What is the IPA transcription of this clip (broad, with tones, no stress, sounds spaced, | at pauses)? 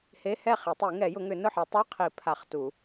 h e˧˥˧ h ɛ˥˩ χ i˨˩˦ tˤ i˨˩˦ ŋ ɛ˨˩˦ j ʊ˨˩˦ ŋ ʏ˨˩˦ n ʊ˥˩ ħ ɛ˨˩˦ tˤ a˧˥˧ qʰ i˨˩˦ pʰ a˨˩˦ χ t u˨˩˦